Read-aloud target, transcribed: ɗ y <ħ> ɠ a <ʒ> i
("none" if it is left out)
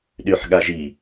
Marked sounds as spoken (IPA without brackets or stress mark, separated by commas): ħ, ʒ